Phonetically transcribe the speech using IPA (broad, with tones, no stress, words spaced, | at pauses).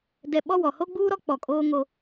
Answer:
dɛ˨ ɓɔ˦wɔ˨ ho˦ɡ͡buː˦ɾɔ˦ k͡pɔ˨kʼoː˦ŋo˦